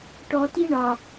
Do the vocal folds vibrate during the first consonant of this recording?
no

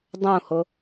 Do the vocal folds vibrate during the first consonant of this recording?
yes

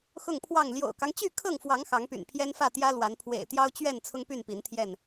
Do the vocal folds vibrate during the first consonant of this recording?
no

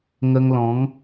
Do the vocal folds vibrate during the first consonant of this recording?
yes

